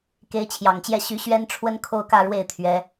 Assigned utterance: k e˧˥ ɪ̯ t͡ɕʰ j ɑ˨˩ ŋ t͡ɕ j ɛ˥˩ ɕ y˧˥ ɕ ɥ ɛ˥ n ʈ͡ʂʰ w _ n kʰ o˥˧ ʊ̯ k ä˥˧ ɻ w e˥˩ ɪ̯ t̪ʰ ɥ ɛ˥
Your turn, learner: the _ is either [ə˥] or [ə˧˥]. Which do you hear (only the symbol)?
ə˥